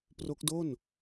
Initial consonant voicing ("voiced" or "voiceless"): voiceless